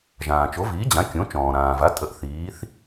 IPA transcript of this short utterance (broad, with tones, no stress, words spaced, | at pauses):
ʒãː˩t͡ʃo˩˥viː˩˥d͡ʑã˩˥ kʲõ˩˥t͡ʃɔ̃ː˩ɾãː˩va˩˥ tʼə˩˥ʔ θiː˩˥θ